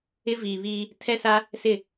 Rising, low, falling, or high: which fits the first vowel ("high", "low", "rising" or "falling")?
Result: high